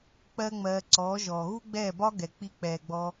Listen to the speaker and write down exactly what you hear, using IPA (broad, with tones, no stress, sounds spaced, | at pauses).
k͡p ɜ˦ ŋ͡m ɜː˧ ǀ ɔː˨˦ ʒ ɔː˨ ɣ u˦ ɡ͡b ɛː˦˨ b ɒ˦ ɡ ɛ˨ k͡p i˧ k͡p ɛː˨ ɡ͡b ɔ˧